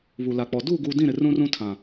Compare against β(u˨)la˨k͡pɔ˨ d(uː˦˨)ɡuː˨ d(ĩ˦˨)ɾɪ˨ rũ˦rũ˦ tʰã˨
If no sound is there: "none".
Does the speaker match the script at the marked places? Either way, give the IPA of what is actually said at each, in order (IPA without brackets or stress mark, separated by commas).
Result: u˨, uː˦˨, ĩ˦˨